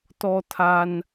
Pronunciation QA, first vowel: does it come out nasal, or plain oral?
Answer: oral